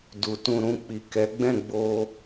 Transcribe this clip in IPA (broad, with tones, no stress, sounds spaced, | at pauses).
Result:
d u˨ t ũ˧ ɾ ũ˧ k͡p i˨ k ɛ˨˦ ɡ͡b ɛ̃˦˨ ɡ͡b o˧